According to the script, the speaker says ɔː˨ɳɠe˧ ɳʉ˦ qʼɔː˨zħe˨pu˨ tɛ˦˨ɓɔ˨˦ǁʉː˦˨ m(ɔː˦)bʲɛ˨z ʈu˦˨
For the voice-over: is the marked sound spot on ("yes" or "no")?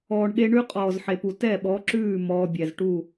no